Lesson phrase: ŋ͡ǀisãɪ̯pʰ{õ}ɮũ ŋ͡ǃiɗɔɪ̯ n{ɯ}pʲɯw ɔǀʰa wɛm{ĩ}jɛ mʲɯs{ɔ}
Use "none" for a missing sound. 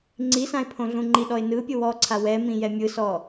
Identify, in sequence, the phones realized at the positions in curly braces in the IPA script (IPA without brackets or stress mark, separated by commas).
õ, ɯ, ĩ, ɔ